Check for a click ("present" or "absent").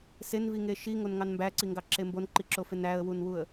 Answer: present